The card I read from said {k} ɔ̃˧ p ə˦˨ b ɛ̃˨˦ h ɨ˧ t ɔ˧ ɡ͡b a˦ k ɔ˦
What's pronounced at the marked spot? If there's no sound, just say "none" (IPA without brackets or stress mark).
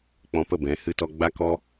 k͡p